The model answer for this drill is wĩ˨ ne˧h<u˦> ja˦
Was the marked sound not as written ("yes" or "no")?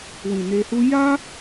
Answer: no